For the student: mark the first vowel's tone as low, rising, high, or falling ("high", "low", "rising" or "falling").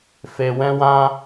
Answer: low